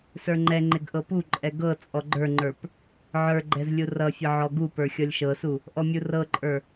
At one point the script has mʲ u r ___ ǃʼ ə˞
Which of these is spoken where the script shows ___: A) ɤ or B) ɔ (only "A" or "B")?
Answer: A